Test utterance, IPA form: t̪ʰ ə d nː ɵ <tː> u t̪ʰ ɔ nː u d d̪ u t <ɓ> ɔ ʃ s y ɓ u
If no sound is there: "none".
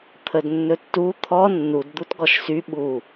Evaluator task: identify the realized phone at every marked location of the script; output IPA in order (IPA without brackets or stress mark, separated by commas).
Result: tː, ɡ